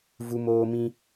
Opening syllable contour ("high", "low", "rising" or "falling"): high